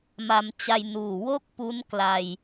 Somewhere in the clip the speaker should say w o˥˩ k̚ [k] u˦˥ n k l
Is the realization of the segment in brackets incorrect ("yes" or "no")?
yes